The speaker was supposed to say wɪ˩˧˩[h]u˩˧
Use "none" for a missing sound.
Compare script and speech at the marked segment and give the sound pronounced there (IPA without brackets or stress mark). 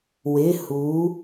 h